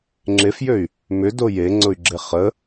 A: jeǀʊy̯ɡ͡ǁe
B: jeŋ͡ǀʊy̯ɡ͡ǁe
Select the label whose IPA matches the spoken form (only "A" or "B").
B